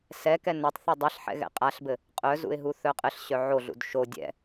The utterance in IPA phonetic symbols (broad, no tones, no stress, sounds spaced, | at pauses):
s ɛ k ɛ n œ tˤ θ u dˤ ɛ ɬ ħ ɛ̰ ɣ ɛ̰ qʼ a ɬ b ɘ | qʼ œ z ṵ ɪ̯ ɦ u θ œ qʼ ɘ ɬ ɕ œ ʕ o ɮ ṵ d ʃ o dʲ ɛ̰